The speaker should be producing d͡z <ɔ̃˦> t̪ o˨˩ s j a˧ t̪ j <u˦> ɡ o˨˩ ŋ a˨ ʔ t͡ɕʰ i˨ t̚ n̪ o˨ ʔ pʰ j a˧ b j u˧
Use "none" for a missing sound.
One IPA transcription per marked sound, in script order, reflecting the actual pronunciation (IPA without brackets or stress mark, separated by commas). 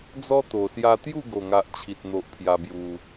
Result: ɔ˦, u˥˧